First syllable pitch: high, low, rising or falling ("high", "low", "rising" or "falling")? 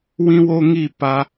high